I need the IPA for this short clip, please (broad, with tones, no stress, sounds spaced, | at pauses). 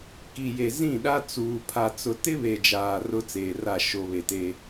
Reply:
k i˨ j e˨ z ĩ˦˨ ɗ a˦ t͡s uː˨ pʰ a˨ t͡s ʊ˨ t ɪ˦ β e˨ d͡ʒ aː˨ r ʊ˦ t͡s eː˨ r a˦˨ ʃ o˨ β e˨ t e˦